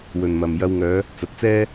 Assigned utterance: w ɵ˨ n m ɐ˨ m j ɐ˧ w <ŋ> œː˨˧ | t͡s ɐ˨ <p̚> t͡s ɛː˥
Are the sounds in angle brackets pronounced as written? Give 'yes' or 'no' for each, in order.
yes, no

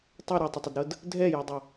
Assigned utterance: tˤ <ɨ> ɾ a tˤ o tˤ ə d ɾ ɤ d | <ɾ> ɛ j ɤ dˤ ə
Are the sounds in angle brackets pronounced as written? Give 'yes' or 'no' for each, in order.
no, no

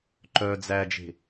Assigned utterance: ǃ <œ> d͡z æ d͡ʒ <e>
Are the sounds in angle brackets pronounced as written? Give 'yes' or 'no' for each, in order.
yes, no

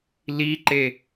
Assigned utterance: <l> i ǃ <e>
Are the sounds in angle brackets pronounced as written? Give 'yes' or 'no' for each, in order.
yes, yes

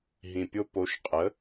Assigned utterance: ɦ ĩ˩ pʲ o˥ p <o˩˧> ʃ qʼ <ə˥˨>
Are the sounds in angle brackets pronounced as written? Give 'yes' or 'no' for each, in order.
no, no

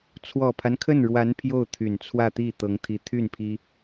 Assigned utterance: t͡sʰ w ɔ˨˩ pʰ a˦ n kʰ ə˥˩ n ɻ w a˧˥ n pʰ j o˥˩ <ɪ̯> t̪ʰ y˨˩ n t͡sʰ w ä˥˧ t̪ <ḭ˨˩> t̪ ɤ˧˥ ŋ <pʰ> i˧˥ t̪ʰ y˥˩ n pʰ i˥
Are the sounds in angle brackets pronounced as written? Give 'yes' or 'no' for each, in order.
no, no, no

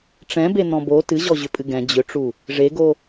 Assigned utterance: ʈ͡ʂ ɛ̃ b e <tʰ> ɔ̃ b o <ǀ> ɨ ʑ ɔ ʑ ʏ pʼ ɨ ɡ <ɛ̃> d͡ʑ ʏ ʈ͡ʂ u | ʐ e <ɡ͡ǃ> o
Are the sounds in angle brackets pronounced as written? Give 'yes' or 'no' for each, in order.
no, no, yes, no

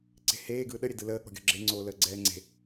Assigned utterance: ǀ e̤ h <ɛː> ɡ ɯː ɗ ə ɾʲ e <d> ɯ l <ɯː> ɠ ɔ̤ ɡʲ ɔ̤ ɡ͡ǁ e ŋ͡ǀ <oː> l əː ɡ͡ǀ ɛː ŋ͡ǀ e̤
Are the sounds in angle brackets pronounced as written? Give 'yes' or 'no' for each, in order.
no, yes, no, yes

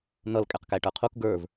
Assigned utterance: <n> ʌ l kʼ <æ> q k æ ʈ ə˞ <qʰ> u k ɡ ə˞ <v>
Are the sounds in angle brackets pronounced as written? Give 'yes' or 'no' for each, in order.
yes, no, yes, yes

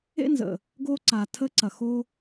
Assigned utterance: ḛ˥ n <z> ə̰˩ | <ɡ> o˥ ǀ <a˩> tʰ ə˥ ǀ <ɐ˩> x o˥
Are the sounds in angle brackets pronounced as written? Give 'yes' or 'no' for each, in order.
yes, yes, yes, yes

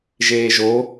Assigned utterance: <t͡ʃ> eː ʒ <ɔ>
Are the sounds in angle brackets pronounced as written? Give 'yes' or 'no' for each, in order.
no, no

